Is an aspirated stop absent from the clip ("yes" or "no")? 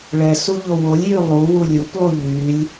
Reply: yes